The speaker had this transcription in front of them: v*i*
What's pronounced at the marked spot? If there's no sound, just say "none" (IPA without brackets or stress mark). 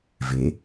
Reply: e